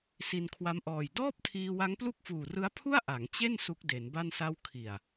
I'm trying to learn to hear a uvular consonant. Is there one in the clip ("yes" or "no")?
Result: no